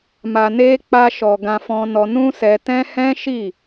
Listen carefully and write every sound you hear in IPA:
m a˨ n e˧ k͡p a˧ ʃ ɔ˨ ɡ ã˧ f ɔ̃˧ n ɔ˧ n ũ˦ s ɛ˧ t ɛ̃˦ h ɛ̃˦ ʃ i˦˨

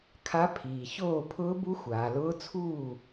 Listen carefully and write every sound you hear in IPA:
kʰ a˧˥ pʰ iː˩ ç oː˥˩ pʰ ʊː˧˥ b u˧˥ xʷ aː˩ l ʊː˧˥ t͡sʰ uː˥˩

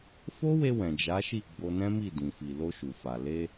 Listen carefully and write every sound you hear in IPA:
f o˦ w e˧ w ɛ̃˨ d͡ʒ a˨˦ ʃ i˦˨ ɡ͡b o˧ n ɛ̃˦ m i˦˨ d ĩ˨ f i˨ l o˧ ʃ u˨ f a˨ l e˧

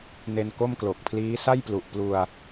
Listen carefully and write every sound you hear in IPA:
n e˧ n k o˥˩ m k l o˨˩ k̚ pʰ l iː˦˥ s a˥˩ j p l u˨˩ ʔ p l u˧ a̯

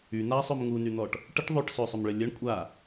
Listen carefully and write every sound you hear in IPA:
y n̪ a sˤ ø m ŋ u n y n̪ ɔ ʈ | ʈ ə ʈ ðˤ ø ʈ s ø sˤ ø m ɭ ə lʲ ə ɳ kʷʼ a

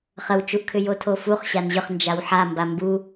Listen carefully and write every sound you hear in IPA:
χ ə w t͡ʃ u ʔ kʰ ʏ j o tʰ o f u χ ɕ a n ʑ ʏ χ n d͡ʒ a w ħ a m b a m b u

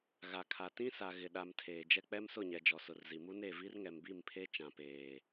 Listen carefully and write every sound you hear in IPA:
ɣ a˨ kʰ a˨ t ĩ˦ s a˨ ɣ ɪ˨ ɗ a˨ m tʰ eː˨ d͡ʒ ɛ˦ k͡p ɛ˦ m s ʊ˦˨ ɲ ɛ˨ d͡ʒ ɔ˨ s ʊ˨ r z i˨ m u˦ n e˦˨ v i˦ r ŋ ɛ˨ m b i˦˨ m pʰ e˦ t͡ʃ ã˨ p eː˨

